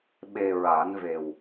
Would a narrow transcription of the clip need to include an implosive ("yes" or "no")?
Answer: yes